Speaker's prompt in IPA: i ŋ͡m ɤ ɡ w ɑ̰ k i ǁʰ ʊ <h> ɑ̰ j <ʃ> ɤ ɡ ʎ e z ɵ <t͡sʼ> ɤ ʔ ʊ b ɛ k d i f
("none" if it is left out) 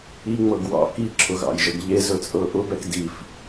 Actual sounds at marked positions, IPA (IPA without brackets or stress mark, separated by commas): ɣ, ʒ, t͡sʼ